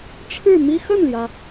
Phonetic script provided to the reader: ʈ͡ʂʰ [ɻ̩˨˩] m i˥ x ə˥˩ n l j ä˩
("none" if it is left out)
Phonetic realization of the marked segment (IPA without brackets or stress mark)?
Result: ɻ̩˥˩